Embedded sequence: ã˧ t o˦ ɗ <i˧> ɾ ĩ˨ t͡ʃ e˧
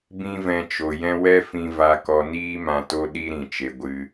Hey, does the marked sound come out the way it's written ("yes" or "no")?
no